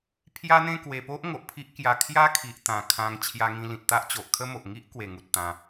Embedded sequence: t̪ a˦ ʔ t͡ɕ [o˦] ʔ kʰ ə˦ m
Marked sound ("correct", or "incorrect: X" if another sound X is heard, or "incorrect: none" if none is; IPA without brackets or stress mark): incorrect: o˨